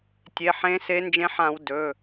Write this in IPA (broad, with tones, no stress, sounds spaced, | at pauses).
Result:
tʲ e˩˧˩ ħ ẽ˨˦ s e˨˦ n d͡ʒ ẽ˨˦ ħ ã˧˩˧ w d ɵ˩˧˩